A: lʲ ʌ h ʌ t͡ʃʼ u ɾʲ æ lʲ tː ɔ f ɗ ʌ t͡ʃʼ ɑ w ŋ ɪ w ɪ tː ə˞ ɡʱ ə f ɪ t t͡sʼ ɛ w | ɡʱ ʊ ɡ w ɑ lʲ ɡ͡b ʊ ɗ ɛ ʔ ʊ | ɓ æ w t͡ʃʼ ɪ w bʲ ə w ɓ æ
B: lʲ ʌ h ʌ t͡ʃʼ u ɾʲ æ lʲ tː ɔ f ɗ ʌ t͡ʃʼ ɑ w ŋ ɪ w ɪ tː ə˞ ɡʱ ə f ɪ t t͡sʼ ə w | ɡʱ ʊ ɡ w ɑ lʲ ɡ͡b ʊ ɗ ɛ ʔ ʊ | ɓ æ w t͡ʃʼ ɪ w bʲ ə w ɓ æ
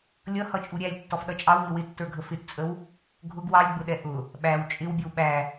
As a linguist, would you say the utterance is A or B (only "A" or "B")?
B